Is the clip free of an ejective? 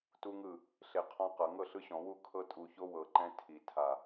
no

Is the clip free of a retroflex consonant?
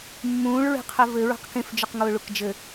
no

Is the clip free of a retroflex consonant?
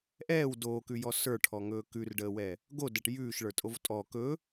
no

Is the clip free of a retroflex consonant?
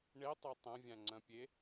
no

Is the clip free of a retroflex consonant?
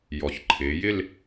yes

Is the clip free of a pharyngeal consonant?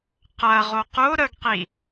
yes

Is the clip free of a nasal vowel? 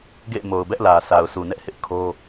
yes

